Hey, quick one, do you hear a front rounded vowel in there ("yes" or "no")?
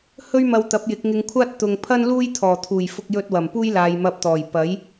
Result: no